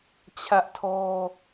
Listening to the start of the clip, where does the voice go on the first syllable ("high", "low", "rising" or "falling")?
high